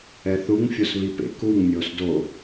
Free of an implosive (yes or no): yes